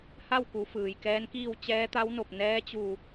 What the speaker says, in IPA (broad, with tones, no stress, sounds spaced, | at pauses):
h a˥˨ w k u˩˧ f ɯː˩ j k ɛː˧˥ n k iː˥˨ w t͡ɕ ɛː˧˥ t̪ a˧˥ w n o˧˩ p̚ n ɛː˧˥ t͡ɕ u˧˩